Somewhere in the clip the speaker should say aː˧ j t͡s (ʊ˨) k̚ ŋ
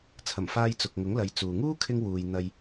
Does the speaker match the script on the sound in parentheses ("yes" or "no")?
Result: yes